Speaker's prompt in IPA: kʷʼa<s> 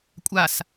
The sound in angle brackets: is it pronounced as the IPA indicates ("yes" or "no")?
yes